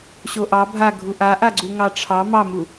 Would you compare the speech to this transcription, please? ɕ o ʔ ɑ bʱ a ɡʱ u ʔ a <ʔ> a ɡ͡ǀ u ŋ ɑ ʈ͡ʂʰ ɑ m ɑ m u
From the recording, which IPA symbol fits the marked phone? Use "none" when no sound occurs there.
ʔ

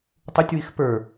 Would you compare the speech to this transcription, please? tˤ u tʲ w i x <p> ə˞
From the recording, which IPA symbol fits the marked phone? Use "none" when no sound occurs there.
p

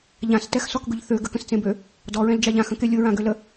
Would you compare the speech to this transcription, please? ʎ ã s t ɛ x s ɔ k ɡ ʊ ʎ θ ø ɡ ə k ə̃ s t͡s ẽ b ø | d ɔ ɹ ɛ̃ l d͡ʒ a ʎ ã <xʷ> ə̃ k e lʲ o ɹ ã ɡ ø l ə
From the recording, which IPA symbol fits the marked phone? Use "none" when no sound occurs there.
x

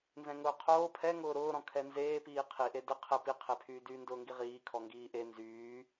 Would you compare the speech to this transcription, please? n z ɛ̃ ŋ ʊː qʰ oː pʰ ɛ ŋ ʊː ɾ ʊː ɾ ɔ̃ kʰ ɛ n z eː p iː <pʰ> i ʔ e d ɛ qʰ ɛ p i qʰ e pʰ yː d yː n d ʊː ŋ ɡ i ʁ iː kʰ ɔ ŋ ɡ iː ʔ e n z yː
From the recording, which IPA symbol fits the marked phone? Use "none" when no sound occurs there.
qʰ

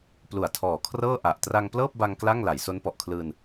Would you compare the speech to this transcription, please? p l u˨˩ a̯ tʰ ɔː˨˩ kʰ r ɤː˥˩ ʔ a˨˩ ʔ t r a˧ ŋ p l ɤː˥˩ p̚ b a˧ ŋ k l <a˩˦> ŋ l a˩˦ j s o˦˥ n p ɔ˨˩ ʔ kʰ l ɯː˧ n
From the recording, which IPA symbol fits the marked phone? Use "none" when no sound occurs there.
a˥˩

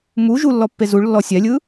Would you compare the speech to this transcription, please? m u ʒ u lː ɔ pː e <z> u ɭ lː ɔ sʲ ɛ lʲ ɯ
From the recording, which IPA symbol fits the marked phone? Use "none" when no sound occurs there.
z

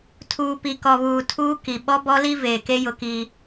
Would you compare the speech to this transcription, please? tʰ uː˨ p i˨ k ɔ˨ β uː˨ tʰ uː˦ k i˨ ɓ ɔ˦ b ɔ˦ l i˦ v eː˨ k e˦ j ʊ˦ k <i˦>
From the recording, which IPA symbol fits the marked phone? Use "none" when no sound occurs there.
i˦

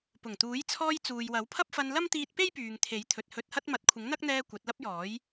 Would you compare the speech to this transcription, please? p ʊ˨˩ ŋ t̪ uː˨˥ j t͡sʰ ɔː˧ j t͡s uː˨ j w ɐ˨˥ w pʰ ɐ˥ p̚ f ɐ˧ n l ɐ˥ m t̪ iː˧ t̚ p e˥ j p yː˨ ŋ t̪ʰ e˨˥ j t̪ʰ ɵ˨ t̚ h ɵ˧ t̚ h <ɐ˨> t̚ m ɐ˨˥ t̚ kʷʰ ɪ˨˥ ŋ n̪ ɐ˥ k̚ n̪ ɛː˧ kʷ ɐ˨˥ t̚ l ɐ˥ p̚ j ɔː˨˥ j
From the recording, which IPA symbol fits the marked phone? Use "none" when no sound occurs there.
ɐ˥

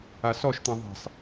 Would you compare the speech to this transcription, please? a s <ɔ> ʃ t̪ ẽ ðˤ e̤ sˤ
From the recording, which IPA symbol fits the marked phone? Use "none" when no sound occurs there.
ɔ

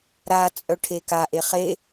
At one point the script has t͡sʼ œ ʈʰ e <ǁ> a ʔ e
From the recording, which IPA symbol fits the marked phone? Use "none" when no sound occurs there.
k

